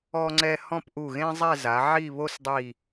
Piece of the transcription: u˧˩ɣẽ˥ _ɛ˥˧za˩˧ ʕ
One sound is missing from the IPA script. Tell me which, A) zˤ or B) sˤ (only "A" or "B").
A